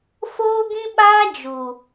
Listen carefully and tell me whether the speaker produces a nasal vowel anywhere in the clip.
yes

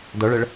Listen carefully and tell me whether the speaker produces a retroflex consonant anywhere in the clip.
yes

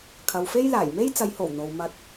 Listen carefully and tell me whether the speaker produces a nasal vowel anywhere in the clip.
no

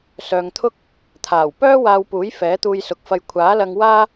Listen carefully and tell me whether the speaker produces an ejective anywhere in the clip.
no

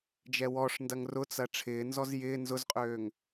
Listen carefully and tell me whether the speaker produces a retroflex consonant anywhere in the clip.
yes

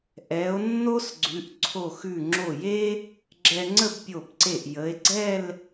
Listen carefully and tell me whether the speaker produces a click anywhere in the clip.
yes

